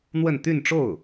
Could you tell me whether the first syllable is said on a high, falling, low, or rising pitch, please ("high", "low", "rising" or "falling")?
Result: falling